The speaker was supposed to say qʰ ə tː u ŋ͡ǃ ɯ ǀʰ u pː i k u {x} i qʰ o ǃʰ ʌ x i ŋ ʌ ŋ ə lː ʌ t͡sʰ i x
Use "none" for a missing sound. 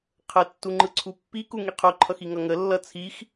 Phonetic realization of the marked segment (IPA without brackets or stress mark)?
ŋ